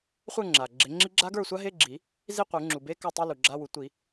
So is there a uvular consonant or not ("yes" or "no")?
yes